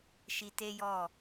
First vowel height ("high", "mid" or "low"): high